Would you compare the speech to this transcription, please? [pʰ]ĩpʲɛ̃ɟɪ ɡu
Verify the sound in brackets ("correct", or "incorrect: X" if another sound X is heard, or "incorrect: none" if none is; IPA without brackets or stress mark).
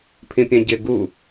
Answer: correct